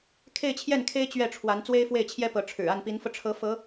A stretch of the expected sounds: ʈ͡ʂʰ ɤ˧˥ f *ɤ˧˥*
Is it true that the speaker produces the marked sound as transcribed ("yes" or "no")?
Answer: yes